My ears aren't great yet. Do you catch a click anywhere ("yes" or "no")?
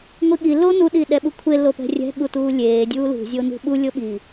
no